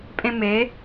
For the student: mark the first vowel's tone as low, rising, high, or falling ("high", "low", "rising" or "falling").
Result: high